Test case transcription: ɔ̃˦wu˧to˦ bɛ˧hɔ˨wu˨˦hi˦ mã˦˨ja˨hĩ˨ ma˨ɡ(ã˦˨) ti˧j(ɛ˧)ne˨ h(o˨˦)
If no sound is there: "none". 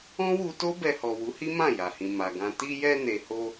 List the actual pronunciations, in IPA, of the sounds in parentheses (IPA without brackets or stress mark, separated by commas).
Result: ã˧, ɛ˧, o˧